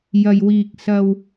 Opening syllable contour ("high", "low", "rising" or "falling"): low